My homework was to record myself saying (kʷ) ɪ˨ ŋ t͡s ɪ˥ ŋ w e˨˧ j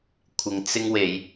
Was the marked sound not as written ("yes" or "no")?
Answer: yes